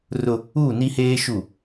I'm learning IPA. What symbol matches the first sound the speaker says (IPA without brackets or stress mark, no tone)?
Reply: r